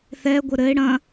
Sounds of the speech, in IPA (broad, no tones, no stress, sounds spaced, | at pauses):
θ ɛ ɡʷ ɘ ɾ ɘ ɪ̯ ɽ ɐ̃